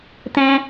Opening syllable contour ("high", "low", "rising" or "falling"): high